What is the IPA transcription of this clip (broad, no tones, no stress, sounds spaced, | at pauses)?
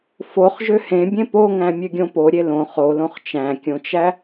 f o χ ʒ ø h ẽ bʲ ẽ p o ŋ æ̃ mʲ ø ɡʲ õ p o ɾʲ e l õ χ o l õ χ t͡ʃ æ̃ kʲ õ t͡ʃ æ